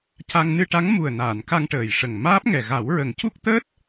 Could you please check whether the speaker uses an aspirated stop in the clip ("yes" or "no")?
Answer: no